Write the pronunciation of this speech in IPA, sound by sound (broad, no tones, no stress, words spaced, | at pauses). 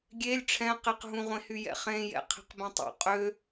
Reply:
ɡʲelʲ ʈ͡ʂʰɛ̃qeqɦũʁʷẽ hyjɛ̰χẽjɛ̰ qʰe̤qbẽtˤṵ qʼø